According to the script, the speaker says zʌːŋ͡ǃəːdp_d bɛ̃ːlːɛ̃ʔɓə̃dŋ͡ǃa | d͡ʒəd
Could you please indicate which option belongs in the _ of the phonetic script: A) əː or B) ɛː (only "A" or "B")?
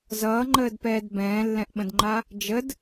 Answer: B